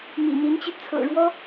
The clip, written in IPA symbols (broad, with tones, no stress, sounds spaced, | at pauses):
m ḭ˨˩ n̪ i˧˥ n t͡ɕ y˧ t͡sʰ ɤ̰˨˩ ɻ w ɔ˥